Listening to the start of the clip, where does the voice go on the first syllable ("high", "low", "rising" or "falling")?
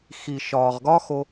low